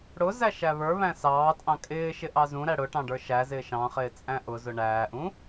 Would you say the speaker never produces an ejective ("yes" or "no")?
no